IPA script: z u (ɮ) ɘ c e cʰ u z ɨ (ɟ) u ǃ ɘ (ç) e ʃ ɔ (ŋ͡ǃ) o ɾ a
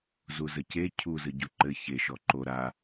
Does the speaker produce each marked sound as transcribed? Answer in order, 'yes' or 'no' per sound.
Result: no, yes, yes, no

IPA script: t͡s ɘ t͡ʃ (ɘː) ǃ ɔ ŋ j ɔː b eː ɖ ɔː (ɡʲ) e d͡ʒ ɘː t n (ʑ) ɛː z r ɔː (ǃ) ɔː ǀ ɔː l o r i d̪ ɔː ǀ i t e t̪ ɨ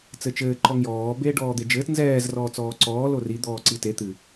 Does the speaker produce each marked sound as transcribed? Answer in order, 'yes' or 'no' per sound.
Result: yes, no, no, no

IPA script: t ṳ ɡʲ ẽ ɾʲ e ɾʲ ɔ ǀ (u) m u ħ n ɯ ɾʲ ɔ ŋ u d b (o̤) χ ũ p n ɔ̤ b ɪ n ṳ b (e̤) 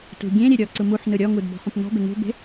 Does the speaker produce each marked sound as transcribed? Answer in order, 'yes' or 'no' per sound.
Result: no, no, yes

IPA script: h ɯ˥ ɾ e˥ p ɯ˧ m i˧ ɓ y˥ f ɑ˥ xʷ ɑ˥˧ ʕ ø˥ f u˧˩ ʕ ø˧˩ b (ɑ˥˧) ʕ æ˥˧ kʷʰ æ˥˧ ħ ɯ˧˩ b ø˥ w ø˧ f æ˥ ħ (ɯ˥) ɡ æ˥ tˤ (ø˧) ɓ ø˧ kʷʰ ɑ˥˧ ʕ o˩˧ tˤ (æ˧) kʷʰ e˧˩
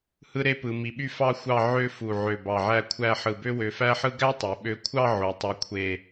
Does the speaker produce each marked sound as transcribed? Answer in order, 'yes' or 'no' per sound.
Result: no, yes, no, yes

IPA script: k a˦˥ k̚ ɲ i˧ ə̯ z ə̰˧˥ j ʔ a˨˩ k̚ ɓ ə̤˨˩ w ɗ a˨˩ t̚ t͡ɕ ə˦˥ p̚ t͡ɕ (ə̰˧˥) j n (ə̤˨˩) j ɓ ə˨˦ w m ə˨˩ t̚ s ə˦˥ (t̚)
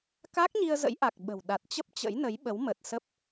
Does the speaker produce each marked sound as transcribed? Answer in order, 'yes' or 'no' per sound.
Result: yes, no, no

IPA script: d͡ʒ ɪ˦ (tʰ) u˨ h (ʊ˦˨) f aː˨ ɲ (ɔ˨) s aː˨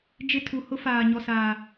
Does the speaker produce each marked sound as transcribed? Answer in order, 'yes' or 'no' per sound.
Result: yes, no, yes

